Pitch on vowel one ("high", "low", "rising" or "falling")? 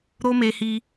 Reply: high